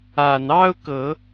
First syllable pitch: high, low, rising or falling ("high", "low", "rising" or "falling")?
low